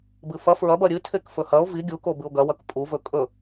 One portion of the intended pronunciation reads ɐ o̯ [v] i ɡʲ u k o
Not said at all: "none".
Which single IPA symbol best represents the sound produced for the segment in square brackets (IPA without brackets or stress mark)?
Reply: v